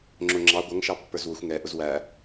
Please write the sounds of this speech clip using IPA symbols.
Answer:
ŋ͡ǁ ʊ ŋ͡ǁ ɑ ɡʷ ʌ ŋ ʃ ɑ pː ə˞ z w ʊ xʷ ŋ ɛ ʔ ʊ z w æ

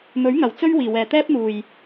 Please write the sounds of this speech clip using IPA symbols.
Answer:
m ɵ˨˥ ɥ ŋ ɐ˨˩ w t͡s ɵ˥ ɥ w iː˨˩ w ɛː˨˩ t̪ ɛː˥ p̚ n̪ uː˨˩ j

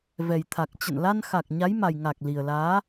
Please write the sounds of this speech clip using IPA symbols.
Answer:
v ɛ˨˩ j t̪ʰ a˨˩ k̚ t͡ɕ ə̰˧˨ n l a˧ n x a˨˩ k̚ ɲ a˨˦ j m a˨˩ j ŋ a˨˩ k̚ l i˨˩ ə̯ l aː˨˦

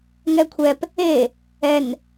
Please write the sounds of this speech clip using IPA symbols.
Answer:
ŋ ɛ kʷʰ ɛ p | e | ɛ n

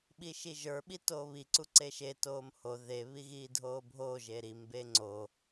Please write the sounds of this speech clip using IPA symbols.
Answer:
ɓ i ʃ i ʒ ə˞ ɓ i t oː β i ǀ u ǀ e ʃ e t oː m h o ð e β i ɣ iː dʱ oː bʱ oː ʒ e ɾ i m b e ŋ͡ǀ o

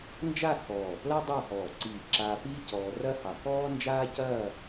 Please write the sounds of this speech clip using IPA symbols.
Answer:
n d͡ʒ a˥˧ x ɔː˧˩ p l ɐ˥ dˤ a˥˧ h ɔː˧˩ ǀ iː˧˩ ǁ aː˧ p iː˥ c ɔː˧ r ɐ˥ h ɑ˧˩ x ɔː˥ n d͡ʒ aː˥ c ɐː˥˧

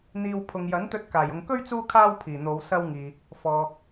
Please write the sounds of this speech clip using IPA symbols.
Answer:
n̪ iː˧ w pʰ ʊ˨ ŋ j ɐ˨˥ n t̪ ɵ˧ t̚ k aː˨˩ j ʊ˨ ŋ k ɵ˥ ɥ t͡s uː˧ kʰ aː˧ w pʰ iː˨˩ n̪ o˨˧ w s ɐ˧ w ŋ iː˨ | f ɔː˨

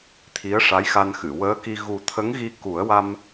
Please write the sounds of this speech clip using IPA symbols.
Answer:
t̪ʰ i˧˥ ə̯ ʂ a˧˥ j x a˧ n x ɨ˨˩˨ w əː˧˥ k i˧ ɣ u˨˩ t̪ʰ ə˧˥ ŋ ɣ i˧ k u˨˩˦ ə̯ w a˧ m

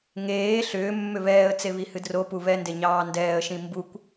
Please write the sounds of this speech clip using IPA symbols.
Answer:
ŋ eː ɬ ʏː mː ʏ β ɛː ə̯ t͡s e β i h ɨ d r o p u β ɛ n d e ɲ ɑː n d ɛː ə̯ ʃ ĩ m b u kʷ

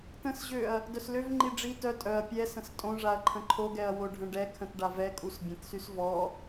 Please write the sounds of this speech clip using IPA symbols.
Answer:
t ə̃ s ʑ ø ɐ̯ | d œ s l ø v ŋ͡ǃ i ɖ͡ʐ i t œ tʼ œ ɐ̯ pʲ ɛ s ə̃ s tʼ õ ʐ a ɐ̯ ǃʰ ə̃ ǃʰ o ɡ ɛ ɐ̯ w o ɖʱ ə̃ ɖ ɛ kʰ ə̃ t ɖ a v ɛ kʼ u s bʲ ə̃ t s y s v ɔ

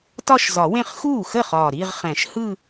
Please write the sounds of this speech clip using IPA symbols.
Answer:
t ɒ˥˧ ʃ z ɒ˨˩˦ w ẽ˥˩ χ x uː˥˩ x ə˥˩ χ ɒː˨˩ ɾ i˥˧ ʁ χ ɛ̃˨˩˦ ʃ h ɯ˥˧

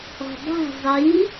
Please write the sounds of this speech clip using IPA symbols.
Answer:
ɔ̤ dˤ ɛ̤ zˤ i

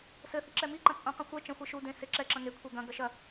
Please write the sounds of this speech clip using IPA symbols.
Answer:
s ɘ θ i ǁ ɛ m i ǃ ɐ̃ t͡sʼ õ q ɐ̃ xʷ ɛ t͡ʃ ɐ̃ xʷ ɛ ʃ u d ẽ s e ǁ ɛ ǁ ɐ̃ ŋ e kʷʰ e ɡ ɐ̃ ɡ ɐ ʃ ɐ

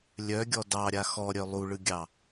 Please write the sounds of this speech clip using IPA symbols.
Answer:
lʲ œ ɡʲ ɔ d ɑ ɾʲ a x ɔ ɾʲ œ lˠ u ɭ ɯ ɡʲ ɑ

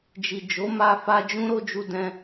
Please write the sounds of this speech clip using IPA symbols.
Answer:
d͡ʒ i˨ d͡ʒ o˨˦ m a˧ f a˧ d͡ʒ ũ˦ ɾ o˦ d͡ʒ u˦ d ɛ̃˦

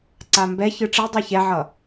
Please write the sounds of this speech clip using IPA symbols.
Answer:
ǀ a m b ɛ ç ɯ ʈ͡ʂ i dˤ i ç ɛ ʕ ʌ

